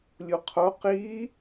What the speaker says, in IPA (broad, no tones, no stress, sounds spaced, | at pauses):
lʲ u qʰ o q i